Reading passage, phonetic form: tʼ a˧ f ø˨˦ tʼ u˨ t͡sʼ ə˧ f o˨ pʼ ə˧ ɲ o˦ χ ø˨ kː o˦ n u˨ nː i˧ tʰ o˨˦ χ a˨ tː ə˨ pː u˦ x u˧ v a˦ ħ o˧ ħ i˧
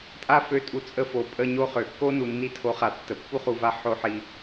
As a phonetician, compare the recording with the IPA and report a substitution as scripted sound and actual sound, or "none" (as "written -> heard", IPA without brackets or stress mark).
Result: x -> χ